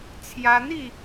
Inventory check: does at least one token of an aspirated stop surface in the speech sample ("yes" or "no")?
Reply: yes